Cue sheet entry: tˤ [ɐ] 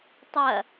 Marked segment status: correct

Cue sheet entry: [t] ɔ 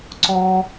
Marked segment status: incorrect: ǀ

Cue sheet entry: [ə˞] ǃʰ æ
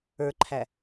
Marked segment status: correct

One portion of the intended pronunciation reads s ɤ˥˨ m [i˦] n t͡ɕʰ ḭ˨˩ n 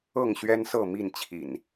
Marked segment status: incorrect: i˥˨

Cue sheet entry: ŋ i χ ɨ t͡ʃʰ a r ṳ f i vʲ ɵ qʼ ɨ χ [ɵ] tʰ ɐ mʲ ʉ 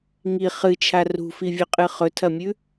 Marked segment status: correct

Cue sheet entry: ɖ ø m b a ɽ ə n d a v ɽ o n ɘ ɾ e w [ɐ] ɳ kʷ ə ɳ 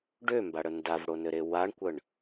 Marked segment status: incorrect: a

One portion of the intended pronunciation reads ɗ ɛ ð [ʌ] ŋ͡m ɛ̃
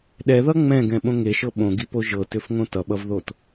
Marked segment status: correct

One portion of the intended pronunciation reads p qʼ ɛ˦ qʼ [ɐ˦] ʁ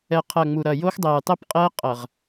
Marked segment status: incorrect: ɐ˨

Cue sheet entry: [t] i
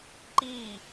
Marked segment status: incorrect: ǃ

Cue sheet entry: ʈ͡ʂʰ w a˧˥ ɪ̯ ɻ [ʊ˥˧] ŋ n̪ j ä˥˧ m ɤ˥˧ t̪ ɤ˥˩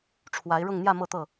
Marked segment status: correct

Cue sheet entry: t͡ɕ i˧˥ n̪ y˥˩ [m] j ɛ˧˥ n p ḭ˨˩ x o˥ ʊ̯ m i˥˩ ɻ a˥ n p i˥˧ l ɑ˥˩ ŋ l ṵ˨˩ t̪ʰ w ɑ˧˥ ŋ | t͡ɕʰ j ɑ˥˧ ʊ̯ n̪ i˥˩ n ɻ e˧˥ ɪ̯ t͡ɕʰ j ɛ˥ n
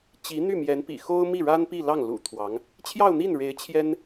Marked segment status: correct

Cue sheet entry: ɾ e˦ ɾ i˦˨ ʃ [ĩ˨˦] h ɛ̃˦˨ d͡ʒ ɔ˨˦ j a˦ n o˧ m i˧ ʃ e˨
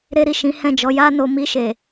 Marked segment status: correct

